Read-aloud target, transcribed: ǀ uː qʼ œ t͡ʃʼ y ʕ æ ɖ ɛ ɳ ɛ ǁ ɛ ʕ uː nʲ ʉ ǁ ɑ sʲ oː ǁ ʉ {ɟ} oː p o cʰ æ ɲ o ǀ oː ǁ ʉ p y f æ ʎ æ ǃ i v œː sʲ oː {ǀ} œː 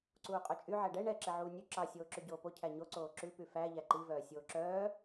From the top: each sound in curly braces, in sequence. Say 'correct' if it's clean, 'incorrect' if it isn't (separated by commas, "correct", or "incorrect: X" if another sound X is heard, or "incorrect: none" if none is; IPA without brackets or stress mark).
correct, incorrect: ǁ